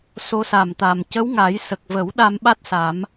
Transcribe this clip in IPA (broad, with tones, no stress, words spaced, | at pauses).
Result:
so˧˥sa˨˩mt̪a˨˩m cə˧˥wŋa˨˩˦j sə˨˩k̚və˨˩˦w ɗa˧mɓa˦˥t̚ sa˨˩˦m